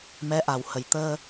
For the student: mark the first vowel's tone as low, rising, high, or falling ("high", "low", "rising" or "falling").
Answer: rising